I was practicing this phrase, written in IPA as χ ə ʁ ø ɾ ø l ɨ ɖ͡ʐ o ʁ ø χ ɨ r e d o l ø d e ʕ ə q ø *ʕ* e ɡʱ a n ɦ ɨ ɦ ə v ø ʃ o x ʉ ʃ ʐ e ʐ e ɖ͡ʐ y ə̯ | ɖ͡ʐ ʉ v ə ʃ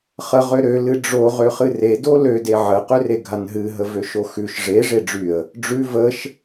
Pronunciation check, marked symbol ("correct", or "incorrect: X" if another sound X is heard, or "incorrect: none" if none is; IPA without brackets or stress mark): incorrect: r